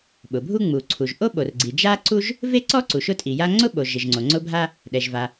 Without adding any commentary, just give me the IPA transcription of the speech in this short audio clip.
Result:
ɓ ʊ˩ bʱ u˥ ŋ͡m u˩ ǀʰ u˩ ʒ ʔ o˥ ɓ o˩ r ɡ͡ǀ i˩ d͡ʒ a˥ ǀ u˥ ʒ | v e˥ ǀ ɔ˥ ǀ u˩ ʃ ʊ˥ tʼ i˩ j a˥ ŋ͡ǀ ʊ˥ ɓ o˩ ʒ ɪ˩ ʒ ŋ͡ǀ o˩ ŋ͡ǀ ʊ˥ bʱ a˥ | ɗ ɛ˩ ʒ v a˩

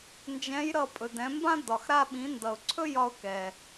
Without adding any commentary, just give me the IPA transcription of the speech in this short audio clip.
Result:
n d͡ʒ ɛ̃˧˥ j ɾ ʌ˧ pʼ ɵ˩ d ɛ̃˩˧ m b ã˥ d ɒ˩ x ɾ a˧ ɓ ĩ˩˧ n d ʌ˩ ʊ̯ ǀʰ ɵ˥ j ɒ˧ ʊ̯ k ɛ˩

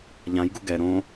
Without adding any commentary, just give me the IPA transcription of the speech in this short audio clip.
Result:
ʎ ã j ɡ u ɡ ɛ ɾ õ

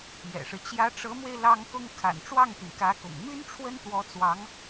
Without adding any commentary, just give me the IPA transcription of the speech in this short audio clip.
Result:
j ɛ̰˨˩ ʂ ɻ̩˦ t͡ɕ j ä˧˥ ʈ͡ʂ ɤ˧˥ m w e˧ ɪ̯ l ɑ˥ ŋ k ʊ˥ ŋ kʰ a̰˨˩ n ʈ͡ʂ w ɑ˥˩ ŋ t̪ y˩ n k ä˧˥ k ʊ̰˨˩ ŋ m y˥ n ʈ͡ʂʰ w ə˥ n t̪ w ɔ˧˥ t͡s w ɑ˧˥ ŋ

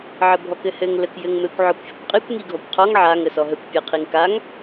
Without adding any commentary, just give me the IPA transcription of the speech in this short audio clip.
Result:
ʕ ə bʱ ɔ k ɘ h ɘ ŋ l ə k j ɘ ŋ m ɘ kʷ ʕ ɔ kʷ fʲ ɘ kʷ qʼ i kʷ ŋ i ɡʱ ɔ kʷ qʰ ɔ ŋ ʕ a ŋ ə s ɔ ɦ ə kʷ pʲ ɘ qʰ i ŋ k a ŋ

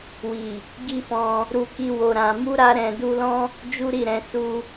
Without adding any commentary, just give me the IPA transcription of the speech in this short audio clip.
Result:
w i˨ | ɡ i˦ f ɔ̃˧ | ɾ u˧ k i˧ w o˨ ɾ ã˨ m u˧ ɾ a˧ ɾ ɛ̃˧ d u˧ l ɔ̃˦ | d͡ʒ u˦ ɾ i˦˨ ɾ ɛ̃˧ s u˧

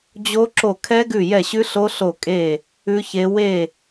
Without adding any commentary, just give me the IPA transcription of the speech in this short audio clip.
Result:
d͡ʑ o˦˥ ǁ o˦˨ kʰ ɛ˦˥ ɡ ʉ˦˨ j ɛ˦˨ ɕ ʉ˦˥ ɬ o˦˥ ɬ o˦˨ kʼ e˦˨ | ʉ˦˥ ç e˦˥ w e˦˨

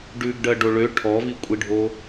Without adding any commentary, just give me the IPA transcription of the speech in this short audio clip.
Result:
ɖ ʉ ɡ ɖ ɜ ɖ o ɭ ø ʈʰ ɔ v i kʷʼ i ɖʱ o

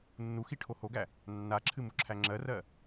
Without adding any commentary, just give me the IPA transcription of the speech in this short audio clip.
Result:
nː u x i ʈʰ o h o ɡ æ | nː a ǁʰ ɨ m u ǁʰ æ ŋ͡ǁ ɜ r ɜ

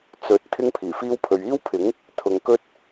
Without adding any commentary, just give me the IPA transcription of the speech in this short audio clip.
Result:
t͡s ɵ˨˥ t̚ t̪ʰ ɪ˥ ŋ pʰ iː˨˩ f iː˥ w pʰ ɵ˨ ɥ iː˥ w pʰ ɪ˨˥ ŋ | t̪ʰ ʊ˨ ŋ k ɵ˥ t̚

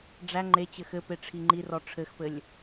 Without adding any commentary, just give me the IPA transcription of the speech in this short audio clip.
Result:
ɖ͡ʐ æ ŋ͡ǃ e t͡ɕ ɘ x ɘ p e ʈ͡ʂʰ i ŋ͡ǃ i r ɔ ʈ͡ʂʰ ɘ x p ɘ lʲ

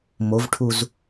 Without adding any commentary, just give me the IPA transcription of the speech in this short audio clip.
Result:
m o v ʈʰ u z

